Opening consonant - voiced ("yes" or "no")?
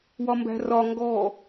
yes